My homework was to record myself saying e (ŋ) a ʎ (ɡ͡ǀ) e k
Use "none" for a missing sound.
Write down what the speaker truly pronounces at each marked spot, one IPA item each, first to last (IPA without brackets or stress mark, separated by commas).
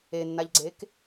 nː, ɡ͡ǀ